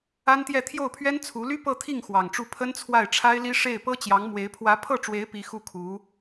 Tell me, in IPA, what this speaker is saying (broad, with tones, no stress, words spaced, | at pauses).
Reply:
a˥nt̪jɛ˥˧ t̪ʰjo˥˩ʊ̯pʰɥɛ˥nt͡sʰu˧˥ly˥ pɤ˥˧t̪ʰi˥˩ŋ xwɑ˨˩ŋʈ͡ʂu˥˩ pʰə˥nt͡sʰwa˥˩ɪ̯ʈ͡ʂʰa˥ɪ̯li˥ ʂe˥˩ɪ̯ pɤ˥t͡ɕjɑ˧˥ŋmwe˧˥ɪ̯ pʰwä˧˥pʰɤ˥˩ʈ͡ʂwe˧˥ɪ̯ pi˧˥ xu˥˩kʰu˧˥